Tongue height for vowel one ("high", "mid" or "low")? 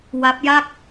low